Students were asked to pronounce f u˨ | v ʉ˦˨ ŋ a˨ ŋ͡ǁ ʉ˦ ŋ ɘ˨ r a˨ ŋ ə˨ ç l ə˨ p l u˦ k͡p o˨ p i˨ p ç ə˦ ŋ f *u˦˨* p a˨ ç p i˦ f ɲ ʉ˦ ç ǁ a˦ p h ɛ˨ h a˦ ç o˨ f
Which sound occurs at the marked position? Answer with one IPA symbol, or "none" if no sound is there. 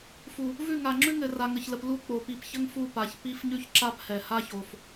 u˦˨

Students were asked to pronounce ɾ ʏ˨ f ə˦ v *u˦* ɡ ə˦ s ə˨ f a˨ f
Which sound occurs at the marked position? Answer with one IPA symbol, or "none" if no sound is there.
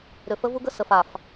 u˦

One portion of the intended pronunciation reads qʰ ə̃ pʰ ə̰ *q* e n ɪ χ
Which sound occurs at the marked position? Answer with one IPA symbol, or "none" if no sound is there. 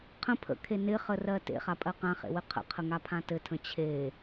kʰ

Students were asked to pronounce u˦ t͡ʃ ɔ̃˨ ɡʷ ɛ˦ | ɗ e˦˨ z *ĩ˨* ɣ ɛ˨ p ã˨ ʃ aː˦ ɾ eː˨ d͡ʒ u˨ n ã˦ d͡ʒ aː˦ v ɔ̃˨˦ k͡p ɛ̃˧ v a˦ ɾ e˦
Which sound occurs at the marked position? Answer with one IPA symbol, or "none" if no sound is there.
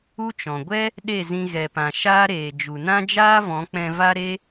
ĩ˧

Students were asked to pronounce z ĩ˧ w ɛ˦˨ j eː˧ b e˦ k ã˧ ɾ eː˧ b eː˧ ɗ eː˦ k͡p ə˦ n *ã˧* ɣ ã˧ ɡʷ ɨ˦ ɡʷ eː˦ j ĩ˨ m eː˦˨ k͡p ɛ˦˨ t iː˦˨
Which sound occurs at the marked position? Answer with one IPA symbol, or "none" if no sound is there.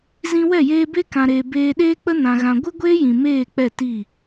ã˧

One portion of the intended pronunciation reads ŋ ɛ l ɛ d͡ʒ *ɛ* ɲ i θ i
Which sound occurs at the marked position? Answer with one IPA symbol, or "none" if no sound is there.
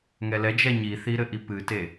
ɛ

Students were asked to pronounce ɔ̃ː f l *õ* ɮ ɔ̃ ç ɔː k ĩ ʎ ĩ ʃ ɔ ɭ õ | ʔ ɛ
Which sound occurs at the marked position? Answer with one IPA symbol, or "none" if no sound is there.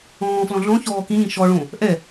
ɔ̃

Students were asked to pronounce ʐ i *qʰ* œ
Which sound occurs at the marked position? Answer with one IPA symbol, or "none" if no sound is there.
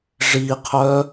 qʰ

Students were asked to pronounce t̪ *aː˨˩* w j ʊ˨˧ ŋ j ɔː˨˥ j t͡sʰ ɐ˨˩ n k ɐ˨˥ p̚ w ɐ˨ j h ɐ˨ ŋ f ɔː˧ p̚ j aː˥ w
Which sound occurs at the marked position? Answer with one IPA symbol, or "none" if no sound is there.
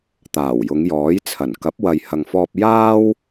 aː˨˩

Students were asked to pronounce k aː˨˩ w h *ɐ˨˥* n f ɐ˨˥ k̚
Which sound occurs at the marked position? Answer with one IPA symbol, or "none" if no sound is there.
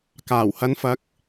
ɐ˨˧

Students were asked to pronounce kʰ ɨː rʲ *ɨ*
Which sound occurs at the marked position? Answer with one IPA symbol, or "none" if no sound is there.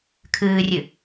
ɨ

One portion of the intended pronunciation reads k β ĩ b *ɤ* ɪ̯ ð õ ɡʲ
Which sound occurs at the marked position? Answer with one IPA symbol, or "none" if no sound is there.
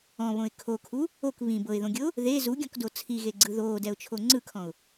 ɤ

